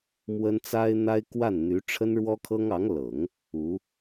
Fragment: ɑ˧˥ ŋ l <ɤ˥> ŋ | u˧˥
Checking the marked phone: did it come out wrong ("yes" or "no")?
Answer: yes